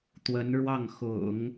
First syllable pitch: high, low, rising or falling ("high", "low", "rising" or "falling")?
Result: rising